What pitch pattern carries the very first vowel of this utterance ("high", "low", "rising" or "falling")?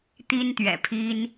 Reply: high